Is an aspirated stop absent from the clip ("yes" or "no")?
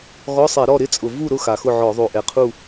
no